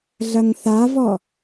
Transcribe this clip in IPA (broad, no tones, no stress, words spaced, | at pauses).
ɮɐŋθavɔ